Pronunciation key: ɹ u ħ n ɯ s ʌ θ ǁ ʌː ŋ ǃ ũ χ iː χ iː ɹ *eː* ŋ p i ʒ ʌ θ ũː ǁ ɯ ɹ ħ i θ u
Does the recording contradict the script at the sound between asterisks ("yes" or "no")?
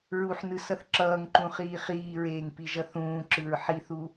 no